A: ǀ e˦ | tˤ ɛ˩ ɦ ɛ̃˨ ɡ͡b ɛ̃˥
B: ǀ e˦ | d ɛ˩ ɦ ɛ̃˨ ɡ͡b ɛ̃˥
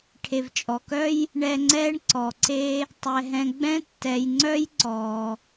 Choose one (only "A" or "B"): A